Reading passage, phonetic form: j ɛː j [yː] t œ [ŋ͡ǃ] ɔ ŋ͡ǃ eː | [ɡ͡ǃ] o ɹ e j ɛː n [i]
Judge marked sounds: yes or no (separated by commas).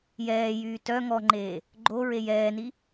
yes, no, yes, yes